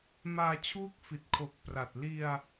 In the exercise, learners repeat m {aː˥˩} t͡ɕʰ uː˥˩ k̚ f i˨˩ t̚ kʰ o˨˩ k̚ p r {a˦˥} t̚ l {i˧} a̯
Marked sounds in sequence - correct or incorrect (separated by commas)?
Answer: incorrect, incorrect, correct